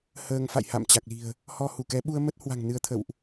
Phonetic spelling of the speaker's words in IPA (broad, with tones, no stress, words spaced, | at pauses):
həː˧ŋfa̰˧˨j ha̰˧˨mt͡ɕa˨˩k̚li̤˨˩ə̯ | hɔ˧hu˧˩kɛ˨˦ ɓu˧ə̯mə˦˥t̚hwa̤˨˩ŋ nɨ˧ə̯t̪ʰə̰˧˨wʔ